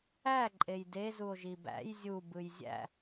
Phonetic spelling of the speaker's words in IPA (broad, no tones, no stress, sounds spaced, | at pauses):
æ ǃʼ e j d e z u o̯ ʒ i b æ̰ j zʲ u b ɯ j zʲ æ̰